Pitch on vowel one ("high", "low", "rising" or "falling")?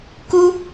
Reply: high